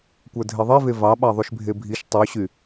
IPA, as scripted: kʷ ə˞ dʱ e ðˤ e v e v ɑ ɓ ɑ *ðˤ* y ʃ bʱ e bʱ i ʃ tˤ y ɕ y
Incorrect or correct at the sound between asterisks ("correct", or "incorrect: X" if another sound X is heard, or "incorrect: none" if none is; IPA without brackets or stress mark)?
correct